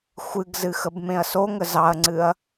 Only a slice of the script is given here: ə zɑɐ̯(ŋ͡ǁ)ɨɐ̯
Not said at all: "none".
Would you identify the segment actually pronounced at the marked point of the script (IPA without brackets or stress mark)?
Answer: ŋ͡ǀ